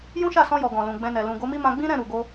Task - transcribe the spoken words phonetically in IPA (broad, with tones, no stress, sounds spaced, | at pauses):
j ũ˦ ʃ a˦˨ s ɔ̃˧ j ɔ˨ ɡ ɔ̃˨ l ũ˨ ɡ͡b ɛ̃˧ n ɛ˨ l ũ˨ ɡ o˨˦ m i˦ m ã˧ ɡ͡b ĩ˦ ɾ ɛ̃˦˨ ɾ u˨ ɡ o˧